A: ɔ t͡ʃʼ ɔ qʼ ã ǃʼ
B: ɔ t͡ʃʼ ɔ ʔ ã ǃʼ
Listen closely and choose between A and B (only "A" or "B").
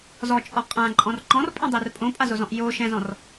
A